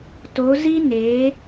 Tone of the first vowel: rising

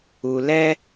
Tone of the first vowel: low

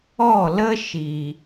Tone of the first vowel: falling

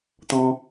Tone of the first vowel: high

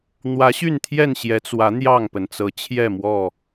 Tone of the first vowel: rising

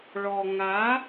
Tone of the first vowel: low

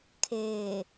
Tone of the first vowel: low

